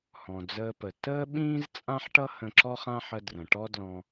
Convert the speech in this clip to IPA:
h ɔ̃˩ d͡z əː˧ p ə˩ t əː˥ ɓ ĩː˥ z t͡sʼ ã˥ ħ ʈ ʌ˥ h ə̃˧ ǁ ɔ˥ χ ã˥ ħ ə˧ d r ə̃˩ ʈ ɔ˥ d l ɔ̃˧

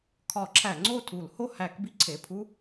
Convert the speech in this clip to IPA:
kʰ ɒ˧˩˧ ǁʰ æ˧˩˧ ŋ͡ǀ o˥˨ tʰ u˧˩˧ l h o˥˨ h æ˧˩˧ k b i˥ ǀʰ e˩˧˩ pʰ u˥

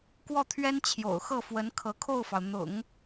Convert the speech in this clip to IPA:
k w ɔ˥˩ t̪ʰ ɥ ɛ˥ n t͡ɕʰ j o̰˨˩ ʊ̯ x ɤ˥˩ f w ə˧˥ n kʰ ɤ˧˥ kʰ o˥˩ ʊ̯ f ɑ˩ ʊ̯ n̪ ʊ̰˨˩˦ ŋ

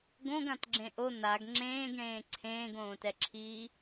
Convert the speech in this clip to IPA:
ɡ õ ɡ ã t ɡ͡ǁ ẽ ʔ o n̪ a ɡ ŋ͡ǁ ẽː ɡ ɳ ẽː ǀʰ ẽː ɡ õː t ɛ ǁʰ iː

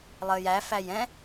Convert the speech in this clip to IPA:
lˠ əː j æ f æ j ɛ̃

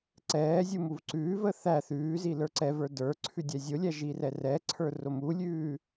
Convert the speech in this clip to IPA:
ǀ ɛː zʲ u m u v ǀ ʉː v ə θ æ θ ʉː z i l ə˞ ǀ ɛ v ə˞ d ə˞ ǀʰ ʉ dʲ æ zʲ o lʲ æ ʒ i r ɛ r ɛ ǀʰ ə˞ r o m u lʲ ʉː

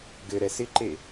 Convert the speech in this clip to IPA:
ɡ ɘ ɾ ɛ s ɪ ǃ e

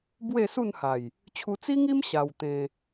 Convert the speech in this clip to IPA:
b w e˥˧ s u˥˧ n h a˨˩ j | t͡ɕʰ u˧ t͡s i˦ ŋ i˦ m ɕ a˧ w t̪ ẽ˧

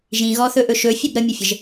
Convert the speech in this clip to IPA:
ʒ ĩ ɣ ɔ θ ɵ ʔ ɵ ʃ ɵ fʲ ɵ b ɾ ə mʲ ə fʲ ə ʒ

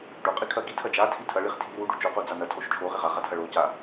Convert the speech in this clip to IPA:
ɖ o qʼ i kʰ ɐ ɡ i tʰ ɐ d͡ʒ a tʰ i tʰ ɐ ɭ i χ tʰ i ɾ u ɖ u t͡ʃ o q u d͡z a n ɐ tʰ o ʃ t͡ʃʰ o ʁ i ʁ a ʁ a tʰ ɐ ɭ o c a

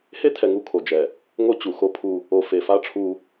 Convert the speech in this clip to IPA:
h e˦ tʰ ɛ˨ ŋ u˦ kʰ o˨ d͡ʒ ɛ˨ | ŋ o˦ t͡ɕ u˨ x o˦ pʰ u˦ | o˨ f e˨ f a˦ ʈ͡ʂʰ u˦

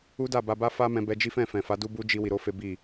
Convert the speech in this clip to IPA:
u˦ d a˦˨ b a˧ b a˦ f a˦ m ɛ̃˧ b ɛ˧ d͡ʒ i˦ f ɛ̃˦˨ f ɛ̃˨ f a˨˦ d u˦ b u˦ d͡ʒ i˧ w i˨ ɾ o˨˦ f e˦ b i˦˨

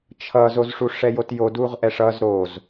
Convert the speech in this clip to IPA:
t͡ʃʰ ʌ z o z ʂ u ʂ ɛ j o t j o d u ʁ ʔ ɛ ʂ ʌ z ɾ o z

